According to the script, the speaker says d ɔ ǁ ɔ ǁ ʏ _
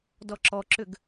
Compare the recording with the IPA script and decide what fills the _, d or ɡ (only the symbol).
ɡ